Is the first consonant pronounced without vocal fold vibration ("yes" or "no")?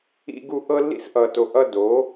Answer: no